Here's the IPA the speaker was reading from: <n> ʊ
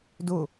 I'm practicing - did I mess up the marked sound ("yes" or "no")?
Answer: yes